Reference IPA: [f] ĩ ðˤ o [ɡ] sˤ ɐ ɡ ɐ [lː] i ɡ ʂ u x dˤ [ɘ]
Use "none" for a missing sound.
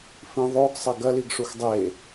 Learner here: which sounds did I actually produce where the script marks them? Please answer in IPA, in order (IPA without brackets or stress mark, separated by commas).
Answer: f, ɡ, l, e